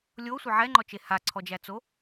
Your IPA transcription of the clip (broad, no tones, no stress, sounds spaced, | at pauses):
lʲ o sʷ ɪ ʕ ɛ ŋ͡ǃ ɔ t͡ʃ e h a ǀʰ ɔ d͡ʒ æ t͡s o